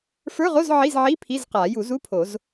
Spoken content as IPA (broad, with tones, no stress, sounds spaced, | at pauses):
f ə˞˧˥˧ ʁ o˧˥˧ z ʕ i˧˥˧ z ʕ i˧˥˧ pʰ i˧˥˧ z q a˨˩˦ j u˨˩˦ z u˧˥˧ pʰ o˨˩˦ z